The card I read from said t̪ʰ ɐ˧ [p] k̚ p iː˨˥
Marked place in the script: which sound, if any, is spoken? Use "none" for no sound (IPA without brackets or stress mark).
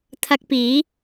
none